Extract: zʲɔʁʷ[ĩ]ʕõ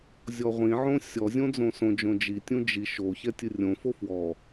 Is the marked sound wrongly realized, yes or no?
no